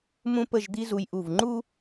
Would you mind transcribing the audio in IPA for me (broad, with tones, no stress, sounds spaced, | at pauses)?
m ũ˥ p ə˥˧ ʒ d̪ i˥ z u˧ j ʔ u˧˩ v ŋ͡ǃ u˥